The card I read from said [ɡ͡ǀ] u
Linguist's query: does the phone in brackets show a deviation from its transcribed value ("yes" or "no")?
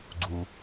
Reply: no